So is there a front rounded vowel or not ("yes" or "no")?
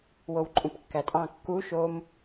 no